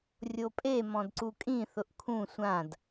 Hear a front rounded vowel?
no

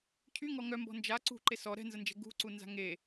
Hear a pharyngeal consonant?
no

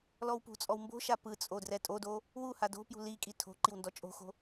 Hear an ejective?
yes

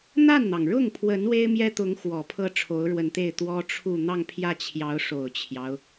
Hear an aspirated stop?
yes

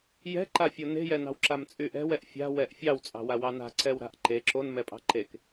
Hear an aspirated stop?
no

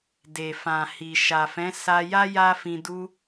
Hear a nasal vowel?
yes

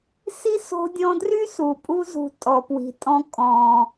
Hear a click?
no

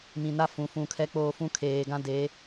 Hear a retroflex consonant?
no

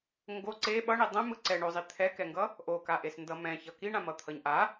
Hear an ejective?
no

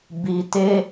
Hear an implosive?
no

